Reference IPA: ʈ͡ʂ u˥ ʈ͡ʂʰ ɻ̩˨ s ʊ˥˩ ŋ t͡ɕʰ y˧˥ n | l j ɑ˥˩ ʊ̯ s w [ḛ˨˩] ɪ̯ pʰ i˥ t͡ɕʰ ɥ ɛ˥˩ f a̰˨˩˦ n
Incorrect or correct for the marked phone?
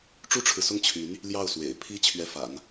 correct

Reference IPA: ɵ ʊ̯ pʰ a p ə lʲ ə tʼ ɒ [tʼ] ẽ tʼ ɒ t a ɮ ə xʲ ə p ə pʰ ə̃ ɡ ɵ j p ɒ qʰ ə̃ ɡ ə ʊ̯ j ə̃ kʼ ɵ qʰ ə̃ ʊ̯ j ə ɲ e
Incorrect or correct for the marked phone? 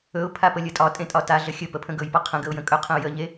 correct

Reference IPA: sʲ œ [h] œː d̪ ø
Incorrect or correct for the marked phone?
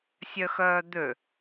incorrect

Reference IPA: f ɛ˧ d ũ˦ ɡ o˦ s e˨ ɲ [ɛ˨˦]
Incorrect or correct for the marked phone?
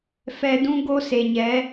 correct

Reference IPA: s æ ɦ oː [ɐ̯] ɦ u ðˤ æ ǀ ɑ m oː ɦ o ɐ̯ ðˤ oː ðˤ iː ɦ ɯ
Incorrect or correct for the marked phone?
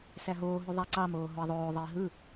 incorrect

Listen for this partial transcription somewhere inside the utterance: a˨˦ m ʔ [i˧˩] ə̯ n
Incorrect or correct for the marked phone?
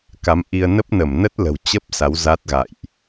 incorrect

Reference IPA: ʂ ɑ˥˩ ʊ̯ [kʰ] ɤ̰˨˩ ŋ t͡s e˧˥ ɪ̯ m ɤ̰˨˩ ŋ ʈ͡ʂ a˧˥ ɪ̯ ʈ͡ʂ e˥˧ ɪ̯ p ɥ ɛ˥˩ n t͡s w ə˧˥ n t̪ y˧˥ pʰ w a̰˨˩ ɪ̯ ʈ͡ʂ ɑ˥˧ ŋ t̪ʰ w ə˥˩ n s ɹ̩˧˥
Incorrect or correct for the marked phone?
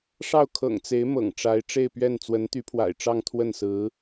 correct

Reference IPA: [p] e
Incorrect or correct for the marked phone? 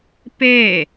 correct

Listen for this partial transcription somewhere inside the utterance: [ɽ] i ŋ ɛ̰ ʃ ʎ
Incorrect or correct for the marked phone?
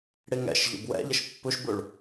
correct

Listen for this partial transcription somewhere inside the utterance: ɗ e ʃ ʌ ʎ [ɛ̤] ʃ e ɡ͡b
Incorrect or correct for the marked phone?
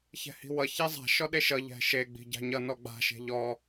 correct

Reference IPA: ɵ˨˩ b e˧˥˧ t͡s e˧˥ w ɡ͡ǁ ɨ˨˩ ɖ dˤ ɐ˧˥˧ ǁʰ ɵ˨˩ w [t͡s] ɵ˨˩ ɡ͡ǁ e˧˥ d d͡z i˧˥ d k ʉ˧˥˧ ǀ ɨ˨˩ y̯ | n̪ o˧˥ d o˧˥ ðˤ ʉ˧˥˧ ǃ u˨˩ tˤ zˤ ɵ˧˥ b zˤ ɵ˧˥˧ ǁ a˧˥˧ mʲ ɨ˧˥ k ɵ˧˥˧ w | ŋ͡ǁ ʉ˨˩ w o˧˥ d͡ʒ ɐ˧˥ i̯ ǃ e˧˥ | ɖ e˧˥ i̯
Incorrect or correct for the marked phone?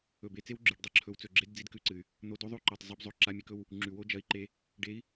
correct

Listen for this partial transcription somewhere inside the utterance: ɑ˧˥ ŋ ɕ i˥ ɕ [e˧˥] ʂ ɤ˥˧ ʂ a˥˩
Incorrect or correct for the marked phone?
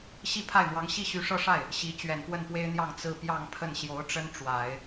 incorrect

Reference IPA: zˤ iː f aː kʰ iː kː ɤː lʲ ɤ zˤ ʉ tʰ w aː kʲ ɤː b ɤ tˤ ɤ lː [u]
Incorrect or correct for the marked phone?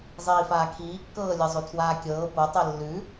incorrect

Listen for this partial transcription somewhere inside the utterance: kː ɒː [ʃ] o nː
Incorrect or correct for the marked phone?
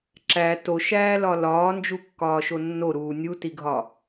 correct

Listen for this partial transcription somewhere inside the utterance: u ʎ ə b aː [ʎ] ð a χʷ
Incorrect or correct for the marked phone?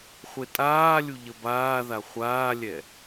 incorrect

